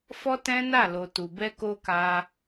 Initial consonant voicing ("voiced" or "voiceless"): voiceless